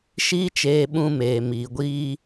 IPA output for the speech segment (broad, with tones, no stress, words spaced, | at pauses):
ʃiː˦t͡ʃeː˧ɓũ˧ meː˨miː˨ɡʷiː˧